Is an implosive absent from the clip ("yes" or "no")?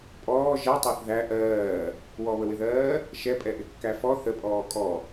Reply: yes